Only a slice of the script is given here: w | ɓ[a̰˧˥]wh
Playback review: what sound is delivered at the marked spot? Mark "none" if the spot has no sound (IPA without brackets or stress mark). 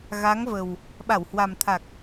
a˧˩